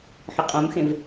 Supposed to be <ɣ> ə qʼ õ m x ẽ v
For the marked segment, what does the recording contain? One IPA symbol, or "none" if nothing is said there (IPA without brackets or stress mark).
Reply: ħ